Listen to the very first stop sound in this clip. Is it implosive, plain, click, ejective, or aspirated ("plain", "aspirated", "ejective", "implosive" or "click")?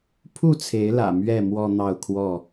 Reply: aspirated